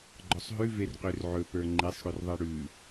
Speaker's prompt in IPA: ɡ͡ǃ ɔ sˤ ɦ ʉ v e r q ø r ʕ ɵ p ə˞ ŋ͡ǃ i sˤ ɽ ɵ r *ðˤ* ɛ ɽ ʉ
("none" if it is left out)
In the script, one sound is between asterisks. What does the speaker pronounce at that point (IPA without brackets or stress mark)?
ðˤ